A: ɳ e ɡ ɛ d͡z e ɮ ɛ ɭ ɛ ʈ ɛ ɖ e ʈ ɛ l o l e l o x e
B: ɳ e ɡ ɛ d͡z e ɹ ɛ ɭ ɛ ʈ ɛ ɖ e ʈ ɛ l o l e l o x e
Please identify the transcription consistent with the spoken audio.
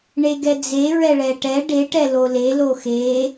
B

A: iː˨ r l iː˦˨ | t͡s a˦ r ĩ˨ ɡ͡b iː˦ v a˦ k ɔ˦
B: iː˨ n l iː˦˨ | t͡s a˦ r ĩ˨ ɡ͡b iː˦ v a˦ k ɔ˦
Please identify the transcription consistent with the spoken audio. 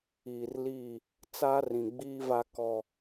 A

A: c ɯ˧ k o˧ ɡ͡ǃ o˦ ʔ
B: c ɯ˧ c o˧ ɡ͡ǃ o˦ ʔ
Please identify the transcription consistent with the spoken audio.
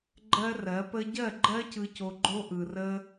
B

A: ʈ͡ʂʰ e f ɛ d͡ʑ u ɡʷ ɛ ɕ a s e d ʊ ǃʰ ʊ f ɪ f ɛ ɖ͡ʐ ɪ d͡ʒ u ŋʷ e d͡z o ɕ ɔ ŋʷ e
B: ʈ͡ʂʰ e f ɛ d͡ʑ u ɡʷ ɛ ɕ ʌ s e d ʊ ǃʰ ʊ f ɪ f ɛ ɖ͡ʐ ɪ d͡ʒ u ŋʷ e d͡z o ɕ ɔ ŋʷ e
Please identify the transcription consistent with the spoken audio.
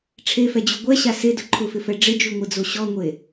A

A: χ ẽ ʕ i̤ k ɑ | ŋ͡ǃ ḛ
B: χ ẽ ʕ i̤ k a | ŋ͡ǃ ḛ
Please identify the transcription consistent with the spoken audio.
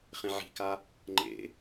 B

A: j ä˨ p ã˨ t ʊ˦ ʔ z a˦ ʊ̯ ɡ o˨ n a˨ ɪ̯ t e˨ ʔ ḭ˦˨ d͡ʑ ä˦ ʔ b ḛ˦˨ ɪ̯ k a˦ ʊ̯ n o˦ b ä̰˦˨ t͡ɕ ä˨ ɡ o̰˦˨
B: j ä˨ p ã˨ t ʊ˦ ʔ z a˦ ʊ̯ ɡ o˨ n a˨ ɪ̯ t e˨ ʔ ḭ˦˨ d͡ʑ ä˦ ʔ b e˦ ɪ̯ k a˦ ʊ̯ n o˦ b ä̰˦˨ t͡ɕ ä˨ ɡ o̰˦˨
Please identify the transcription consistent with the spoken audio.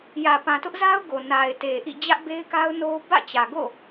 B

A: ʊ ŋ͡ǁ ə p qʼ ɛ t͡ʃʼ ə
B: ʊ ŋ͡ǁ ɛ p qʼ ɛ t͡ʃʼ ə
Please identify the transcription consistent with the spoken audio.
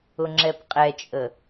B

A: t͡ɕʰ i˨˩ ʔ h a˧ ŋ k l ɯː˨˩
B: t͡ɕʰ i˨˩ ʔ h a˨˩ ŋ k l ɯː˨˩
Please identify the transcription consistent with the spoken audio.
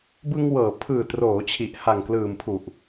B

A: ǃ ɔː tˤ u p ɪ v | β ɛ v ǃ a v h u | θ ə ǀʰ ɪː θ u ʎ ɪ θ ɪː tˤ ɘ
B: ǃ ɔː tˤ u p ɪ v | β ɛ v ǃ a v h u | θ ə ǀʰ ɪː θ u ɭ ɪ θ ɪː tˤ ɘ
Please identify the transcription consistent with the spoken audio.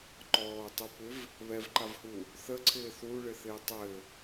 B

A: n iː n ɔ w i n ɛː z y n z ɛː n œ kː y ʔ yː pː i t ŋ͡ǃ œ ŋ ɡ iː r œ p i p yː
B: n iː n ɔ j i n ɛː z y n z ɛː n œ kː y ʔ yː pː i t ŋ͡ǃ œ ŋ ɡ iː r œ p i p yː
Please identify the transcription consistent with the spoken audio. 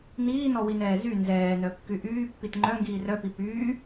A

